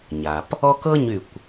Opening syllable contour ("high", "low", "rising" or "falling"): low